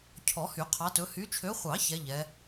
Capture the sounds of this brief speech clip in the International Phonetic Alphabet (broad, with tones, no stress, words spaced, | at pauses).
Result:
cʰɔ˨˩˦hy˨˩˦qʰɑ˨˦tɵ˨˦ hy˨˦t͡ʃʰø˨˦χʷɑ˨˩˦ çɛ˨˦ ʎɛ˨˦